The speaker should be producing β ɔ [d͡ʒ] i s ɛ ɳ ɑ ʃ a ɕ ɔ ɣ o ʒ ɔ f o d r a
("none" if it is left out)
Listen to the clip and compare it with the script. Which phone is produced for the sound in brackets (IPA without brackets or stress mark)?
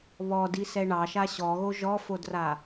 d